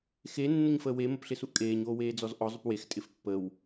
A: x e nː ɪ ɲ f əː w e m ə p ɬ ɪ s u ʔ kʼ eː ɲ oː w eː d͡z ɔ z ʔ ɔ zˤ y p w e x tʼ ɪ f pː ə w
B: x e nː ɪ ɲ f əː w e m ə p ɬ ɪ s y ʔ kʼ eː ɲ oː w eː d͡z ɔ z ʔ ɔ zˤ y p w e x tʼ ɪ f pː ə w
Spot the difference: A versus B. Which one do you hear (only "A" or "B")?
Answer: A